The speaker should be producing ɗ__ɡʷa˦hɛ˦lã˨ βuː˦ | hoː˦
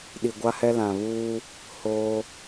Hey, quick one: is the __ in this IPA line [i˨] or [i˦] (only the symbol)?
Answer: i˨